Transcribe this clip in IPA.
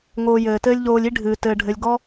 ŋ oː˧ j ɘː˨ t ɘː˧ lʲ ʎ oː˧ lʲ i˦ ɖʱ ɨː˧ t ɘː˧ ɖʱ ɘ˧ lʲ ɡ ɔ˦

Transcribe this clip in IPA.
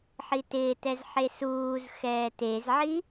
ħ i t ɪː t ɛ z ħ e s uː z x ɛː t e z ʕ i

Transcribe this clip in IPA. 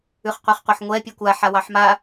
ʉ χ qʷ ɛ χ qʷ ɜ ħ ŋʷ ɛ pʲ ɔ kʷ a ħ a w ɑ ħ m a

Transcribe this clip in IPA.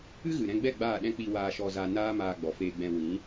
ɨ˦ ɣ ɨ˨ ɾ ɛ̃˧ ɡ͡b ɛ˦˨ ɡ͡b aː˦˨ ɗ ɛ̃˦ k͡p i˧ w aː˧ ʃ ɔ˧ z a˧ n aː˦ m aː˧ ɡ͡b ɔ˨ f eː˧ ɡ͡b ɛ̃˧ w ĩ˨˦

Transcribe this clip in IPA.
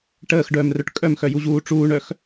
ʈ əː x ɖ œː m r œ ʈ kʼ œ m x œ j u ʑ uː ʈ͡ʂ uː ɳ œ x

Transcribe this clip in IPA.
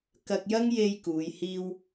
k ɐ˧ k̚ j ɐ˥ ŋ j e˧ j k uː˨˧ j h iː˥ w

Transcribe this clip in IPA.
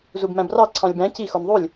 z u b m æ̃ b r ɑ ǀʰ ɑ̃ lʲ b æ̃ c i x o n ðˤ u lʲ

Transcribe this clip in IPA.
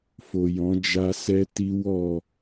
f o˨ j ɔ̃˨˦ d͡ʒ a˦ s ɛ˦ t i˦ w ɔ˦˨

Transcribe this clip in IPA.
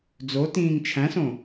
d͡z o t ĩː ŋ t͡ʃʰ æ̃ s õ

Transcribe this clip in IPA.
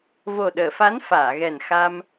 v o˨˩ ɗ əː˨˩˨ f a˧˥ n f aː˨˩˨ ɣ ɛ˨˩ n x a˧ m

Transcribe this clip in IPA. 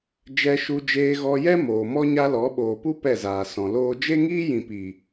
d͡ʒ ɛ˧ ʃ u˧ d͡ʒ eː˧ ɣ ɔ˧ j ɛ˦ m oː˨ m ɔ˦ ɲ a˦ l ɔ˨˦ ɓ oː˨ p u˦ p ɛ˦˨ z aː˨ s ɔ̃˨ l oː˦ d͡ʒ e˦ ŋ iː˦ j ĩ˨ p i˨

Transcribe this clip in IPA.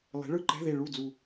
lˠ e̤˩˥ ɭ ɯ˥˩ ǃ ɛ̤˧˥˧ ð e˧˩ ɭ u˥˩ d͡z u˧˩

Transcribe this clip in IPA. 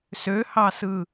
s ø h ɑ s ɯ

